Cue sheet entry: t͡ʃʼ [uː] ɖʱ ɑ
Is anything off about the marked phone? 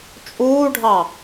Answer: no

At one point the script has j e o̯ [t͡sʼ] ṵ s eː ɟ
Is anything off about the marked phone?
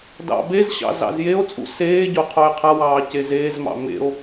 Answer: no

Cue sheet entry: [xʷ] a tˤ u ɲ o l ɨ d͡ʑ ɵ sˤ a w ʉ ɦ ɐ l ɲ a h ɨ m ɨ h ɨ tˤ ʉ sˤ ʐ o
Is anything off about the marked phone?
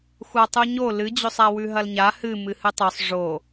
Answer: no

